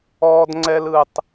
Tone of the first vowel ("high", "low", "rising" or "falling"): high